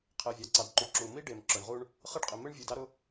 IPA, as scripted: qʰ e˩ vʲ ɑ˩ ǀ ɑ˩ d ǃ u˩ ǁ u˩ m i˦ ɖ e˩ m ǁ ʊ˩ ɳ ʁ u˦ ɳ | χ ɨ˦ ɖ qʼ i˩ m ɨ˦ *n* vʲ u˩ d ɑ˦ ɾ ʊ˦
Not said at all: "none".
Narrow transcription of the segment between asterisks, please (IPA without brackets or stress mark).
ɳ